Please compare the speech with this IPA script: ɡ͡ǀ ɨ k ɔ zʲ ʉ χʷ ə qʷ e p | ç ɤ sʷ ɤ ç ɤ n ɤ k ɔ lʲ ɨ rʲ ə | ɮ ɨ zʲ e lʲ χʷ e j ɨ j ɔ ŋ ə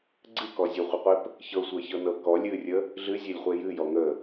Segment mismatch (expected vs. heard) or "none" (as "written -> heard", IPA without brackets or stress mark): ʉ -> ə